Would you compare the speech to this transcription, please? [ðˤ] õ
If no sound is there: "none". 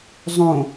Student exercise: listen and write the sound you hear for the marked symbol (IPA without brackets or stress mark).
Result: zˤ